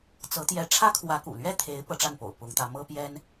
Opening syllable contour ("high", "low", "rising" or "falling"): rising